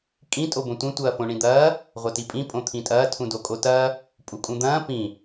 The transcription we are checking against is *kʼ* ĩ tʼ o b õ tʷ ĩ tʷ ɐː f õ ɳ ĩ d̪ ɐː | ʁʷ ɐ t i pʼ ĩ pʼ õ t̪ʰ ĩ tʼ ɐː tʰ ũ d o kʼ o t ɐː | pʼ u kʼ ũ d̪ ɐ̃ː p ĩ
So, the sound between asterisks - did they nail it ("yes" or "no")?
yes